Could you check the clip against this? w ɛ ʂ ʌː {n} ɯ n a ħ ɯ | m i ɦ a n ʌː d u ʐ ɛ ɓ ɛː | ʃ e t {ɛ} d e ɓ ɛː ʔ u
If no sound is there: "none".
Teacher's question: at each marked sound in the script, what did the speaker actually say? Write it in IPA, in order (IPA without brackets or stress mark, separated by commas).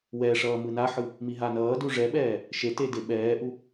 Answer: m, e